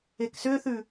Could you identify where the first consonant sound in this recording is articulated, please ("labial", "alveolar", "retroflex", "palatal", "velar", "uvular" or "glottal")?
velar